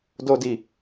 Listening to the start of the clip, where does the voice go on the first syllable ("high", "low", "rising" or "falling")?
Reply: low